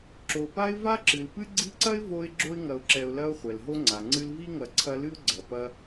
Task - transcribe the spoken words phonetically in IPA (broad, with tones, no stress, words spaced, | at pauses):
ǁo˨pa˥ɪ̯ va˥ǁɨ˩lpɨ˥ ɡ͡ǀi˦ǀɐ˥ɪ̯ vo˦ɪ̯ ɡ͡ǁo˦ɪ̯ŋɐ˨ʊ̯ ǁɛ˨ʊ̯lɐ˦ʊ̯ χʷɛ˩lɦo˦ŋ͡ǀa˩ ŋ͡ǀɨ˦lvi˥ŋɐ˨ ǀʰɐ˦lɨ˥ʊ̯ɡ͡ǀɐ˩pɐ˦